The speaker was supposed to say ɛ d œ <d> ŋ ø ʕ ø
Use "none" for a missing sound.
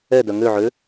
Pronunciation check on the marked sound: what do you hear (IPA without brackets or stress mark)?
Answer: none